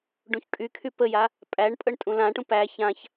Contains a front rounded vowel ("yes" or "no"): yes